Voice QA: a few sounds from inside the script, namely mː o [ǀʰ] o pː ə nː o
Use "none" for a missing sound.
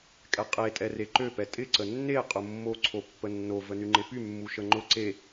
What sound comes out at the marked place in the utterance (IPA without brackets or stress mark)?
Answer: ǀʰ